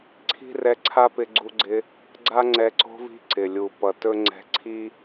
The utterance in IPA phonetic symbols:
ǀʰ i̤˦ r ɛ˧ ǀʰ a˦ p ɪ˧ ɡ͡ǀ u˧ ɡ͡ǀ ɪ˧ | ɡ͡ǀ a˦ ŋ͡ǀ ɛ˧ ǀ o̤˧ v i̤˧ ǀ ɪ˨ lʲ u˨ p ʌ˨ t ɵ˦ ŋ͡ǀ ɛ̤˧ ǀʰ i˦

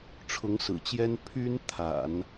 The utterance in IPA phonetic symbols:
ʈ͡ʂʰ ʊ˧˥ ŋ s ɹ̩˨˩ t͡ɕ j ɛ˥ n pʰ y˥ n t̪ʰ a̰˨˩˦ n

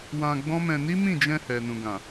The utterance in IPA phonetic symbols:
w ã˧ ɡ͡b ɔ̃˦ m ɛ̃˧ n i˦ m ĩ˦˨ d͡ʒ ɛ̃˧ h ɛ˨ n ũ˨ ɡ ã˨

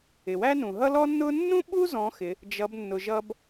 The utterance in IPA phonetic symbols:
ɪ˩ w æ˥ n ũ˩ ɦ ʌ˥ l ɔ˥ nː ʊ˥ nː ũ˥ ɓ u˥ z ɔ̃˧˥ x ɪ˩˧ | d͡ʒ ʌ˩˧ b nː ʊ˩ ʒ ʌ˧ b

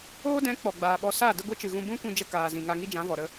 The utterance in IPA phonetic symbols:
oː˦ d ɛ̃˨˦ k͡p ɔ˨ ɡ͡b aː˨ ɓ ɔ˧ s a˦˨ d ə˦ ɡʷ i˦ t͡ʃ ɨ˨ ɣ ũ˧ b ũ˦ kʷ ĩ˧ d͡ʒ ə˧ k aː˨ z ĩ˨ ŋ a˧ ŋ i˦ d͡ʒ ã˨˦ v ɔ˨ ɾ ə˧

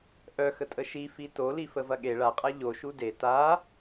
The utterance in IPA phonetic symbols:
ʔ œ x ə tʼ ə ʃ i f i t o l i f ə v ɐ ɠ e ɭ a qʼ a ʎ o ʃ u d e t a

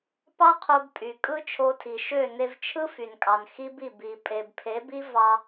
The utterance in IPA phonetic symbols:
p ɑ˦ qʰ o˧ b pʼ y˨ kʼ ɯ˦ t͡ʃʰ o˧ tʰ i˨ ʃ ø˦˨ n e˧ v t͡ʃʰ ɯ˦ f y˨ n kʼ ɑ˨ n x i˦ b i˦˨ b i˨ pʼ e˨ b pʰ e˨˦ b i˦ v ɑ˧

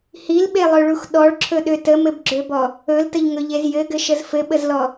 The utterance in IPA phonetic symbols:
h i l ɓ e lˠ ø ɭ u x ɗ ɔ ɭ ǁʰ ɵ ɗ ø t ə m ɘ b ɡ͡ǁ ø b ɔ | ɵ l t ə ʎ ŋ ɵ ʎ e z j ɘ ɡ ɘ ʃ ə z f ɘ ɓ ə z l ɔ

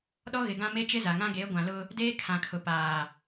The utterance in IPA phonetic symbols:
ɗ ɔ˦ ɣ ɪ˨ ɡ ã˦ m e˦ t͡ʃ ɪ˦ z a˨ ŋ ã˦ ɡ e˨˦ ɡʷ ã˨ l ʊ˦ | d eː˦ kʰ ã˨ kʰ ʊ˨ p aː˨

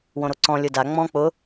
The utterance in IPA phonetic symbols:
w õ ɾ o ǀ ɔ̃ lʲ ʊ d a ŋ͡m ɔ̃ k͡p ʊ

